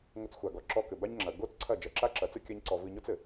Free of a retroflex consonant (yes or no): yes